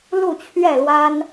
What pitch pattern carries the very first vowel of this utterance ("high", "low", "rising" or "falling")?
falling